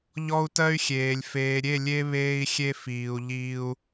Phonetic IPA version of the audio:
ʎ ɔ˦ u̯ t ɜ˦ y̯ xʲ eː˨ lʲ f eː˨ ɾʲ e˦˨ lʲ e˦ β eː˦ i̯ xʲ e˦ f iː˨ u̯ ʎ iː˦ u̯

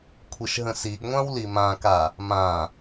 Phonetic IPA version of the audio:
kʷʰ i ʃ ɦ ə̃ s i ɡ ŋʷ ã w l i m ã k a | m ã

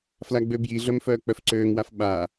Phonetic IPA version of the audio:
f l a ɡ͡b ø b j i ɮ œ m f œː k͡p œ f ǀ øː ŋ w a f ɓ a

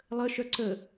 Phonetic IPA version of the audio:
lˠ ə ʃ œ ǀ ə

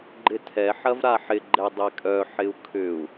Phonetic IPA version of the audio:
ɡ͡ǃ ɪ tʰ ɛ ħ ɐ v ɾ a ħ ɪ ɡ͡ǃ ɛ dˤ ɛ kʼ œ ħ ɪ u̯ kʰ ʏ u̯

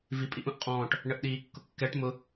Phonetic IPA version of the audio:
v i pʼ i ʔ ũ ʔ qʼ ɔ̃ː ʈ | ɳ ə ʔ ɗ iː kː ʊ kː ɛ ʈ m ʊ

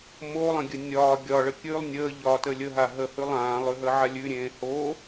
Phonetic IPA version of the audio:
m o lˠ ə̃ ɡʲ ə nʲ ɒː ɡʲ ɒ ɭ ə kʲ ʉ lˠ nʲ əː ʎ ɒː t ə lʲ ə ɦ a ɦ ə h ʉ lˠ ãː lˠ ʉ ɦ əː ʕ a lʲ ʉ ɾʲ ẽː h o

